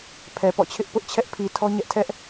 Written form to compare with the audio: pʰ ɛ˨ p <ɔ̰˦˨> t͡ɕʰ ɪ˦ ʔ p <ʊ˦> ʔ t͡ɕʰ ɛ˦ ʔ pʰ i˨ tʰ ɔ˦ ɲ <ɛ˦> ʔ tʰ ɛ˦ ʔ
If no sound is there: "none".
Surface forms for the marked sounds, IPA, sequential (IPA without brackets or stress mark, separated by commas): ɔ̰˦˨, ʊ˦, ɛ˦